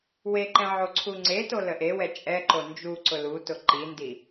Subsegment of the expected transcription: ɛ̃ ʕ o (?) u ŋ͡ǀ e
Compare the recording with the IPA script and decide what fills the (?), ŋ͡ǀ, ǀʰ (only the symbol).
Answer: ǀʰ